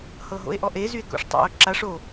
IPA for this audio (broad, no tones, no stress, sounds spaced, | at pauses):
h ɤ ɦ o̰ e̯ ʔ ɔ ʔ e z y e̯ k o̰ ʂ tˤ a̰ o̯ ǁ a ʂ o